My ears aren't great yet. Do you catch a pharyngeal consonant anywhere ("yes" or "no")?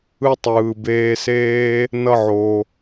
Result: yes